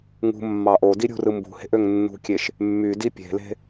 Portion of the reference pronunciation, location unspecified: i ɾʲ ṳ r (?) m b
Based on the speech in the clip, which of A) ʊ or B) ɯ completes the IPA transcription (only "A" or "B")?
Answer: B